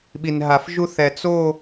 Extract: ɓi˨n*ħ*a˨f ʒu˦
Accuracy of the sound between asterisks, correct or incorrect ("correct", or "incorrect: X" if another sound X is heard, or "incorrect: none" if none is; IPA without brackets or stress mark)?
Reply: incorrect: ɦ